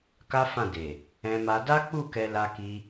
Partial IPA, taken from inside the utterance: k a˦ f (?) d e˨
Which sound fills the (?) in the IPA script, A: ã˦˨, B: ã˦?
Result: A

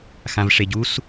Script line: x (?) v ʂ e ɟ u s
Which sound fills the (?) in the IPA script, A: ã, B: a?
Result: A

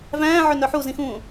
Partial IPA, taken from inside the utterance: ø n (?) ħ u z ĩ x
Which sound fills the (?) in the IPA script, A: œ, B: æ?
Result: A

